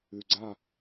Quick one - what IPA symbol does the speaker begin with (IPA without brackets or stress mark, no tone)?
ʉ